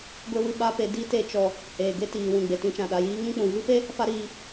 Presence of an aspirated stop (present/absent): absent